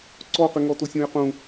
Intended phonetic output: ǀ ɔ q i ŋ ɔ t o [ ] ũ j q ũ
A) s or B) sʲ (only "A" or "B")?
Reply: B